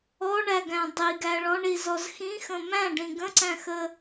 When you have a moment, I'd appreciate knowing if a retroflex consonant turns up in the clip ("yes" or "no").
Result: yes